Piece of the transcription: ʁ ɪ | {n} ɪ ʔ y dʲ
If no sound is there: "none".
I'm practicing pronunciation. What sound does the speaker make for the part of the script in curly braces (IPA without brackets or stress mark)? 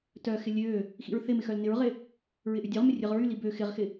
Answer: ɹ